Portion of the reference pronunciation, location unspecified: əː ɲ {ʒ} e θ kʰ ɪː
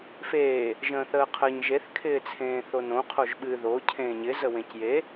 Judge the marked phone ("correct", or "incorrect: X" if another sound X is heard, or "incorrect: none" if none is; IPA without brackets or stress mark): correct